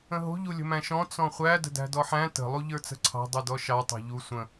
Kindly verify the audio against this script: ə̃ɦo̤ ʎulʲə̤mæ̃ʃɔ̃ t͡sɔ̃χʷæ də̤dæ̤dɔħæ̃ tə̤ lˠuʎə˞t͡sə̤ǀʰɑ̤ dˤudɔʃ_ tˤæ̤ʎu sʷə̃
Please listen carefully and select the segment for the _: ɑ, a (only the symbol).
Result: ɑ